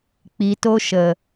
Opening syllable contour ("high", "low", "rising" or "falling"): low